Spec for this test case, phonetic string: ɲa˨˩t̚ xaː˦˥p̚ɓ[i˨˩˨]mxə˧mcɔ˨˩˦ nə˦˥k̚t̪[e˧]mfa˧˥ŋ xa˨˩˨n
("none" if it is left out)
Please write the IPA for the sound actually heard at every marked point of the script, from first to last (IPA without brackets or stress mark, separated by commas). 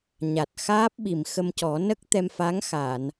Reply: i˨˩˨, ɛ˧